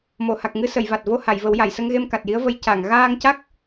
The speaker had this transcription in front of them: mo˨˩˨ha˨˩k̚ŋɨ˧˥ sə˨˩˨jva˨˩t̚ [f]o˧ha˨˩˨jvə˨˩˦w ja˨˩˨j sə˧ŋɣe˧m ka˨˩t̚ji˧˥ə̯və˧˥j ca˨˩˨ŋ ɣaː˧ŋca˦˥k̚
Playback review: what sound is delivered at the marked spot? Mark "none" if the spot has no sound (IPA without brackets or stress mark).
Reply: v